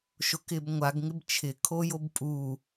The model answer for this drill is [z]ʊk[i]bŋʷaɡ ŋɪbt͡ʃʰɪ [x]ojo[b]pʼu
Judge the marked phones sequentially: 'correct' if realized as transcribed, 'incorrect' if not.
incorrect: ʃ, incorrect: ɪ, incorrect: kʰ, correct

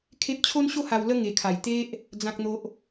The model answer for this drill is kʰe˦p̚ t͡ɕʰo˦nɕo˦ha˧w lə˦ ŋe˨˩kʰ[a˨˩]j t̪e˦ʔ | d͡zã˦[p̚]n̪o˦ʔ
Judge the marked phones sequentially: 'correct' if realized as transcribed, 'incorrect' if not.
correct, incorrect: k̚

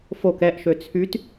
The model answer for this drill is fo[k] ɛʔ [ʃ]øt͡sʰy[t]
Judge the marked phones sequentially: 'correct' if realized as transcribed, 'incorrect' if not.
correct, correct, correct

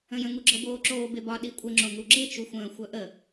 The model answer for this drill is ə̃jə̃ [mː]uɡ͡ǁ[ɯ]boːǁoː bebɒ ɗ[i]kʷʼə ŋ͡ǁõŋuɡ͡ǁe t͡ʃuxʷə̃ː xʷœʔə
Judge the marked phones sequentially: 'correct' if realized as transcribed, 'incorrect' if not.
incorrect: ŋ, incorrect: ɤ, correct

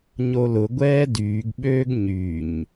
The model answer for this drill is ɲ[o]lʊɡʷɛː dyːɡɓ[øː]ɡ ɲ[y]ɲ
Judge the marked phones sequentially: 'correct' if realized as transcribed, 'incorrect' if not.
correct, correct, correct

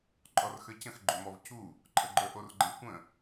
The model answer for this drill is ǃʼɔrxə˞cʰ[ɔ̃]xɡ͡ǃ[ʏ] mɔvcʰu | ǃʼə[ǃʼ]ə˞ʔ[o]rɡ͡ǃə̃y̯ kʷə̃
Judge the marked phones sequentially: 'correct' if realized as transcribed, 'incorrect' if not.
incorrect: ə̃, correct, incorrect: ɡ͡ǃ, correct

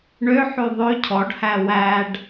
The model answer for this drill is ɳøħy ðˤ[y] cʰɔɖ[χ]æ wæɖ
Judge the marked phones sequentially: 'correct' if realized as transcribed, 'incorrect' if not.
incorrect: ø, incorrect: h

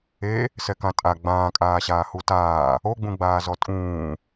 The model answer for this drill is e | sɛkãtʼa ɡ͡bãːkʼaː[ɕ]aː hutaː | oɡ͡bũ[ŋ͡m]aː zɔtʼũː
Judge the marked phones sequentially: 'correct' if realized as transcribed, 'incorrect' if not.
correct, incorrect: ɡ͡b

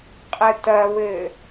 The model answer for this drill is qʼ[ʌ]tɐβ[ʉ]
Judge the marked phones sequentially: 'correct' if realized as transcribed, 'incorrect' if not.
incorrect: ə, incorrect: ɘ

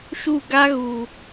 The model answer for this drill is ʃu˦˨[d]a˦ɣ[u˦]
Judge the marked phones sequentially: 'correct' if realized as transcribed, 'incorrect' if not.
incorrect: ɡ, incorrect: u˨

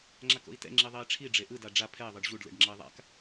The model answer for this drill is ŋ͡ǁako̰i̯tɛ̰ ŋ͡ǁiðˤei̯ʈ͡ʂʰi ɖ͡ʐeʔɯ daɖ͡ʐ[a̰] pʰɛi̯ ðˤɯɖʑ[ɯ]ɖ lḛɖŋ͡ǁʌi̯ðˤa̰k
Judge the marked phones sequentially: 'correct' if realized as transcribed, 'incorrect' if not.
incorrect: a, incorrect: u

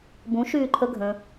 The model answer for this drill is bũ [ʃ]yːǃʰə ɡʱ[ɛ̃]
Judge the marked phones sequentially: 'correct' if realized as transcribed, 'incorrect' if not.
correct, incorrect: ə̃

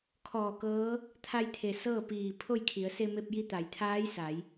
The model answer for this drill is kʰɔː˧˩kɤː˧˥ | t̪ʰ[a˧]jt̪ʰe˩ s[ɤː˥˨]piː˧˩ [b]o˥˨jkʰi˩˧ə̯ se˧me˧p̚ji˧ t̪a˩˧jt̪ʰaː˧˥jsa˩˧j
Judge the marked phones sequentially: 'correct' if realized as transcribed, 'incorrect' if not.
correct, correct, incorrect: pʰ

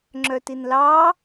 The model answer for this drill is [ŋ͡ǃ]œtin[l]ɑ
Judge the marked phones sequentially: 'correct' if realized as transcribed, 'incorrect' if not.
incorrect: ŋ͡ǁ, correct

